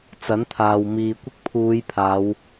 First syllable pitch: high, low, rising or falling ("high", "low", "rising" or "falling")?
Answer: rising